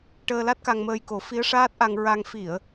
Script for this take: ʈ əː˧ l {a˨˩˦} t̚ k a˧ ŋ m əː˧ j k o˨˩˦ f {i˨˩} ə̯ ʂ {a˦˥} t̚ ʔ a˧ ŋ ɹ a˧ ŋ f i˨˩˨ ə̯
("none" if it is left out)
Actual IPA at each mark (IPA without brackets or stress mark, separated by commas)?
a˦˥, i˧˥, aː˦˥